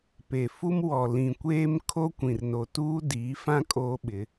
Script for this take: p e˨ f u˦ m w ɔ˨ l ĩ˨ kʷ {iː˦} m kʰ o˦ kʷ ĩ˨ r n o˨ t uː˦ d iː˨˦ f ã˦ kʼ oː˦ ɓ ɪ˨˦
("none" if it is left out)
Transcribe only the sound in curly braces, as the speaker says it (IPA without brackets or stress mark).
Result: eː˦